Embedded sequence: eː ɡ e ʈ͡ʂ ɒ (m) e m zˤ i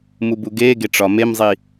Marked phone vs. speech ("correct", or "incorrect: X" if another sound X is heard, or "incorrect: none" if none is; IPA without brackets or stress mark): correct